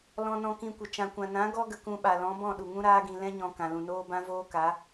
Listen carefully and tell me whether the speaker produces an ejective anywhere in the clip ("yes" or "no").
no